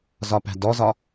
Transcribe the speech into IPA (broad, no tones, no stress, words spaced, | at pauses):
zɒpæ̤dɔzɒ